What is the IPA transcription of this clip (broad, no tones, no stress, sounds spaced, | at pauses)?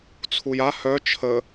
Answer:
t͡sʰ u j a h œ t͡ʃʰ ə